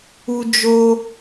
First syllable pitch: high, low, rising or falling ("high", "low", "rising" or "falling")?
high